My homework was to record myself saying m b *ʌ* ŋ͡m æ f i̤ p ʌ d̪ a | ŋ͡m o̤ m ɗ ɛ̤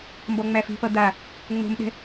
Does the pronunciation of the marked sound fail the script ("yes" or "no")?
yes